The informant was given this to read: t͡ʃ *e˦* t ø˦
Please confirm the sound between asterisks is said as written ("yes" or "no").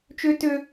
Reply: no